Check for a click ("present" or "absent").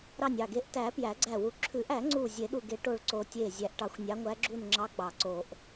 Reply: present